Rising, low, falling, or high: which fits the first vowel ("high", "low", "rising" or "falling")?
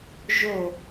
falling